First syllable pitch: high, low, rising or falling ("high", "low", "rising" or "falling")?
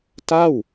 falling